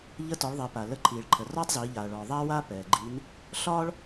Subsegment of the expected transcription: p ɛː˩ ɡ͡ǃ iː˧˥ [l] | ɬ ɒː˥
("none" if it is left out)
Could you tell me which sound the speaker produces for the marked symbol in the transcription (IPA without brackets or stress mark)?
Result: n